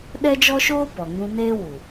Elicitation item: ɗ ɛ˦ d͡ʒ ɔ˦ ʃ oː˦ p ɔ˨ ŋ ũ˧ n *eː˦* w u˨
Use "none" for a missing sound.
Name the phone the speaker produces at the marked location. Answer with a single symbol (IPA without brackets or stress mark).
eː˦